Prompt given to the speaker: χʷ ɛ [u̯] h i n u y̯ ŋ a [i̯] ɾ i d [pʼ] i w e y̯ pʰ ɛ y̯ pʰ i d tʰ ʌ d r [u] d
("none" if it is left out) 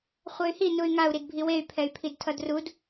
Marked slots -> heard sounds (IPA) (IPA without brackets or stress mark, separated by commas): y̯, u̯, bʱ, u